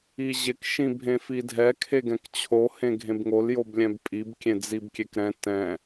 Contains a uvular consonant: no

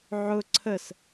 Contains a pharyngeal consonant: yes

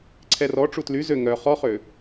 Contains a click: yes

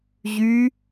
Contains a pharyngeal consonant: no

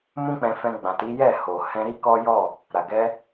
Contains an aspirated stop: no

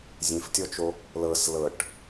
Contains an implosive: no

